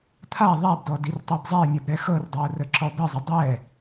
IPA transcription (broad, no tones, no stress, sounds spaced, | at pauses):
t̪ʰ a ðˤ a b d ɔ d i r tˤ i b zˤ ɛ ɪ̯ mʲ ʌ b ɾ ɛ x ɤ r dˤ ɤ ʊ̯ r ə ǁ ɔ b ə zˤ ə dˤ ɛ